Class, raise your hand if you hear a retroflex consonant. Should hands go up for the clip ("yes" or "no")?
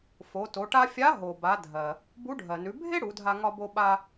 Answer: yes